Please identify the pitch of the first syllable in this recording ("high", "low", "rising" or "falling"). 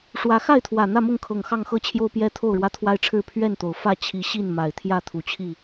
rising